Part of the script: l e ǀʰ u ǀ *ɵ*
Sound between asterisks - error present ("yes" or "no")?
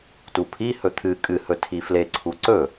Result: no